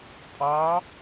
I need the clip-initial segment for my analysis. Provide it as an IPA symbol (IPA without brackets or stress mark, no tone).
pʼ